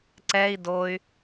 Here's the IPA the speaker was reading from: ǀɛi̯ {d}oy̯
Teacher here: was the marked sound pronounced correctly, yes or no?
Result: yes